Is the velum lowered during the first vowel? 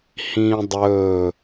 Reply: yes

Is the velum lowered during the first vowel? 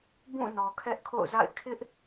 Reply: yes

